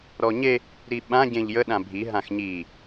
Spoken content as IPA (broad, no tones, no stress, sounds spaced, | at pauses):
ɾ ɔ ɲ e | ɾ i ɓ ã ɟ ẽ ʎ j ə ɗ ã bʱ i ɦ ã x ɲ i